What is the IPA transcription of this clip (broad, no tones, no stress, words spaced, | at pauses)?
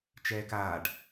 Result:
t͡ʃɛːkaːɖ